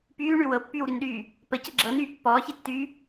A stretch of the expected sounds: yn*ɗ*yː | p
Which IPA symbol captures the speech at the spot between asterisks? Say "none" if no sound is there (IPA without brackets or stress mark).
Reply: ɗ